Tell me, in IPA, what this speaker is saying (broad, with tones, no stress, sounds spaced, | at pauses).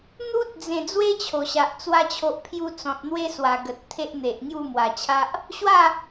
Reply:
n̪ u˦ t̚ d͡z ẽ˨˩ d͡z w e˦ t͡ɕʰ o˨˩ ɕ a˨ ʔ t͡s w a˧ t͡ɕʰ o˨ ʔ pʰ j u˧ t͡s ɔ̃˨ t̚ n̪ w e˦ s w a˨˩ ɡ ə˨ t̚ t̪ʰ e˦ ʔ n̪ e˨ ʔ ŋ j u˥˧ m w a˨˩ t͡ɕʰ a˦ ʔ | ɕ w a˥˧